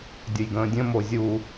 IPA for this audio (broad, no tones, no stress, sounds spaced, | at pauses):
dʲ ə j ɡ ə̃ː dʲ ə̃ m o zʲ u